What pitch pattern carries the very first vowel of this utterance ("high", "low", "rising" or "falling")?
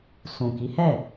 low